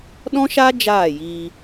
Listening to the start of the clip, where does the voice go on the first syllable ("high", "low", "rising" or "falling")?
high